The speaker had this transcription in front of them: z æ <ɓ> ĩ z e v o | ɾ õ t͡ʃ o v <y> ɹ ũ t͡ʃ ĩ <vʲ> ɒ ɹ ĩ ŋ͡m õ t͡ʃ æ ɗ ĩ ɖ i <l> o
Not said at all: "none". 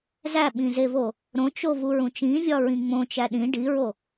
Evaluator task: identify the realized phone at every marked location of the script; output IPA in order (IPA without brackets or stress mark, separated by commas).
ɓ, u, vʲ, ɹ